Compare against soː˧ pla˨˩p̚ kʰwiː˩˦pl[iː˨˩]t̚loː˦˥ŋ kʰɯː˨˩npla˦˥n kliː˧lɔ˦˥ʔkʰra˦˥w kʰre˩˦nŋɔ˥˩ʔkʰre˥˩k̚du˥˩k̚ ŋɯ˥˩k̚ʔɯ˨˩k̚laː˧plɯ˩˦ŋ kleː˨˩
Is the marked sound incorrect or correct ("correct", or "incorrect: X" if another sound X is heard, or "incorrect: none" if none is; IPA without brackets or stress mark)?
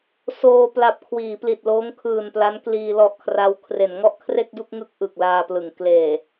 incorrect: i˨˩